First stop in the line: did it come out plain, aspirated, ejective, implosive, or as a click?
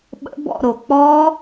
implosive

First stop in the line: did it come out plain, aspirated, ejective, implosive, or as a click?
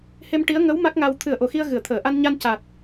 plain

